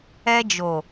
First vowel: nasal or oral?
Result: oral